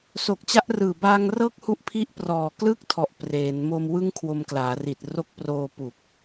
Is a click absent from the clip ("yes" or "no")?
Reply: yes